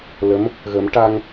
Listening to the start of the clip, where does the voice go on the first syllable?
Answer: rising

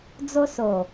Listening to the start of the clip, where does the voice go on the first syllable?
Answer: high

